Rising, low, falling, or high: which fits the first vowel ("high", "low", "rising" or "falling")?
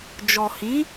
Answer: low